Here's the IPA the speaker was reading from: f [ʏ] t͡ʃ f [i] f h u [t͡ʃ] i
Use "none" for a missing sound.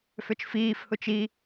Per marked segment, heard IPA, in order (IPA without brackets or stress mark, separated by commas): ʏ, iː, t͡ʃ